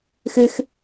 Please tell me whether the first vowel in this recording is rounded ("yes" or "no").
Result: no